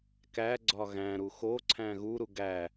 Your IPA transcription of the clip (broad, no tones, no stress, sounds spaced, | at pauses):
k æ ɡ͡ǀ ɒ ɣ æ̃ ɾ u x o ǀʰ æ̃ ɣ u ɾ u ɡ æ